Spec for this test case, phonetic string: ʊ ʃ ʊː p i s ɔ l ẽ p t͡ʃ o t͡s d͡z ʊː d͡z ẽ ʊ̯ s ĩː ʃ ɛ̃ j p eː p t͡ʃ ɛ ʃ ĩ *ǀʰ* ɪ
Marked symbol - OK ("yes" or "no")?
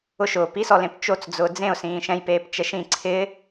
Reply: yes